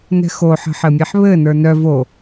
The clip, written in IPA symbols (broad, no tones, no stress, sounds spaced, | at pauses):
n ɛ̤ x o ħ ə̤ ħ ɘ mʲ ɛ ħ β ɘ n ə˞ n œ v o